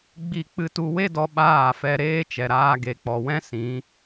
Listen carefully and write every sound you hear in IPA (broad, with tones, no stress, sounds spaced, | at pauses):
ɡ͡b i˦˨ k͡p ɨ˧ t u˧ w e˦ d ɔ˧ ɓ aː˦˨ f ɛ˧ ɾ eː˦ t͡ʃ ɛ˨ ɾ aː˧ ɡ e˨ k͡p ɔ˨ w ɛ̃˦ s ĩ˨˦